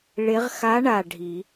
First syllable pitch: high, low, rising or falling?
rising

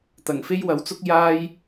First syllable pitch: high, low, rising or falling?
low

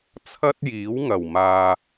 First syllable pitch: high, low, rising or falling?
high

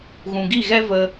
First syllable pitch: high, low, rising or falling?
low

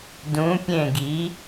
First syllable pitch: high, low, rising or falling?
rising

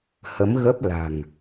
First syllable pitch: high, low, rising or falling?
rising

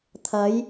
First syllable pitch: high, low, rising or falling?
rising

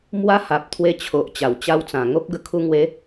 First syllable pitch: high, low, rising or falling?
high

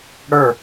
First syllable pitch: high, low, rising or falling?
falling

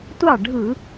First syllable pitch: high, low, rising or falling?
falling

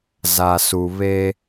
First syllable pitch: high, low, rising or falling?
low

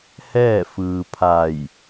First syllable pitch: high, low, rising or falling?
falling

